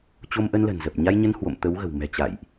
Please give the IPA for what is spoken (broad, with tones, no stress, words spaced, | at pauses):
t͡ɕo˧mʔə˧nlə̤˨˩n zə˨˩p̚ɲa˧jɲə˧n hwo̰˧˨m t̪ə˨˦wɣə̤˨˩w mɛ̤˨˩t͡ɕa̰˧˨jʔ